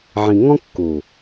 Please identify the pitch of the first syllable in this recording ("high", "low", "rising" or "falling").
low